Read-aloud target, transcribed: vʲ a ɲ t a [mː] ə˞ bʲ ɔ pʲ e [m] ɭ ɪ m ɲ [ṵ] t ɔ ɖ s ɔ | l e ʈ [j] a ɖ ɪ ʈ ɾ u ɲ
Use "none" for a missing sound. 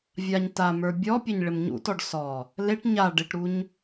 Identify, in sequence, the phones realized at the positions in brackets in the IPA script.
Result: m, ɲ, ṵ, ɲ

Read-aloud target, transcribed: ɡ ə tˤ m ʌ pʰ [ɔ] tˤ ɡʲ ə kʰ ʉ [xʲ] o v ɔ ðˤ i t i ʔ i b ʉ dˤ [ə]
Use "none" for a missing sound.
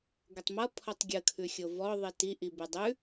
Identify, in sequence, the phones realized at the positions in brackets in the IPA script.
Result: ɔ, xʲ, ʉ

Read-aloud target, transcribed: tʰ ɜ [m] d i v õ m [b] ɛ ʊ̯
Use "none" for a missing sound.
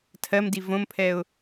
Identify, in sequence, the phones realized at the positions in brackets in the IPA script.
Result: m, pʰ

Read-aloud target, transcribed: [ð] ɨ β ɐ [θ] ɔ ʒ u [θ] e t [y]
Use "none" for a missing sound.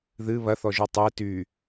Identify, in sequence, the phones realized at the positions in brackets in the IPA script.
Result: ð, θ, tˤ, y

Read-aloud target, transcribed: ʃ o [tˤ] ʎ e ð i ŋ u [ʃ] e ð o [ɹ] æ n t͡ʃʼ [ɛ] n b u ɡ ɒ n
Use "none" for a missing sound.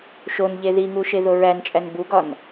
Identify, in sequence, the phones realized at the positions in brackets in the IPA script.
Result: n, ʃ, ɹ, æ

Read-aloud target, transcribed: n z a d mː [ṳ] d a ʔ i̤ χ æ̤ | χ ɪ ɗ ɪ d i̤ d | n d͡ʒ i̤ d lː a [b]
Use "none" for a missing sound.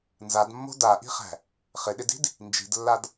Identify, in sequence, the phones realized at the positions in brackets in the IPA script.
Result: o̤, d

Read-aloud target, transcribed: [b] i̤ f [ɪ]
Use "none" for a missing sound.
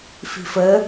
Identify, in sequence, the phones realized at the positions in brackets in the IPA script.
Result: f, ə

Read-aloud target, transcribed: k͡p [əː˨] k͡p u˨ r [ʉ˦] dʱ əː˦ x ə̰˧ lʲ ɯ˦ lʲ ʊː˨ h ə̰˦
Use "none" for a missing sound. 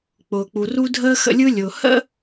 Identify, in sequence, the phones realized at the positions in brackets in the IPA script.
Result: ʊː˨, u˦

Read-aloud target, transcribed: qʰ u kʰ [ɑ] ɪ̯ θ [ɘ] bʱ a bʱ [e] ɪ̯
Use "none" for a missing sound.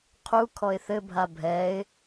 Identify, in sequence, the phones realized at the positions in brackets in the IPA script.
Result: ɔ, ɘ, ɛ

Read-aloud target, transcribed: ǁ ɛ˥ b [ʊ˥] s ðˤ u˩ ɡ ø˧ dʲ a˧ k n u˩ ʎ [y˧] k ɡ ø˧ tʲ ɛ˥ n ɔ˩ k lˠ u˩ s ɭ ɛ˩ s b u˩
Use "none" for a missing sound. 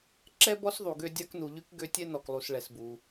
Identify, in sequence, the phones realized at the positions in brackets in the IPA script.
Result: ɔ˥, y˧

